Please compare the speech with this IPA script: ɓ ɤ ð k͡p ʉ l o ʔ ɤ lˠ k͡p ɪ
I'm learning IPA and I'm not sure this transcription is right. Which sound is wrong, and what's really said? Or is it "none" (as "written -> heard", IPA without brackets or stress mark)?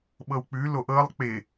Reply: ð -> w